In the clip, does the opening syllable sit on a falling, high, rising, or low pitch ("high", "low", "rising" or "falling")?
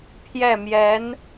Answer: falling